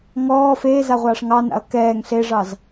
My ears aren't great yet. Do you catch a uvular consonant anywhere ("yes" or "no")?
yes